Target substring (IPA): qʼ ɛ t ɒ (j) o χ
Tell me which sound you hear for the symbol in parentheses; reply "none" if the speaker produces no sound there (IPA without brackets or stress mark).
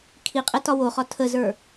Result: w